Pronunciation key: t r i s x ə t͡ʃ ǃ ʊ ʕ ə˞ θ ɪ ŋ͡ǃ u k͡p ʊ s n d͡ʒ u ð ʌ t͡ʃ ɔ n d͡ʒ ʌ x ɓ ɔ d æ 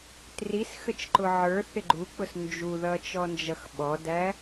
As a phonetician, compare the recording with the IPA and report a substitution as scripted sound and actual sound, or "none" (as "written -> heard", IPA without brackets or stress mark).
ŋ͡ǃ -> ɡ͡ǃ